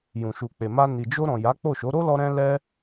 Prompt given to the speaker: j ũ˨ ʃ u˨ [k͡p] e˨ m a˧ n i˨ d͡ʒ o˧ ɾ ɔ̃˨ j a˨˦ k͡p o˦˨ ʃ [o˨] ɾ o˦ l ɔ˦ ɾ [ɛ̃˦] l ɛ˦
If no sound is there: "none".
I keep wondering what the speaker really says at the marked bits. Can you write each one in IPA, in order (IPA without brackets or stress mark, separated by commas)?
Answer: k͡p, o˨˦, ɛ̃˦